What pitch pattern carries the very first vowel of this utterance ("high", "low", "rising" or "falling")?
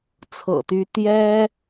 low